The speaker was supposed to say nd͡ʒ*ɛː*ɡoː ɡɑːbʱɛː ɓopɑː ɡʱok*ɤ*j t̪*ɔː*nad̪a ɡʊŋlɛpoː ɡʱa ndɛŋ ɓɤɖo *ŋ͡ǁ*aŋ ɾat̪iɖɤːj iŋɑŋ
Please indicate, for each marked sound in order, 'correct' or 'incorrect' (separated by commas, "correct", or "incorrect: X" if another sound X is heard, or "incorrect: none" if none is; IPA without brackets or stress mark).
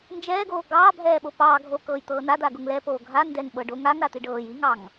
correct, incorrect: ɤː, incorrect: ɤː, incorrect: ŋ